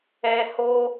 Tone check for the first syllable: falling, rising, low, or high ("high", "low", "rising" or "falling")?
low